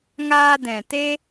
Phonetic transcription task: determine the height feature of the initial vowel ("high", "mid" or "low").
low